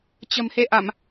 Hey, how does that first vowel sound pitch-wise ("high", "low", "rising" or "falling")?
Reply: low